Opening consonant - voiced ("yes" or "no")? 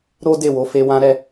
yes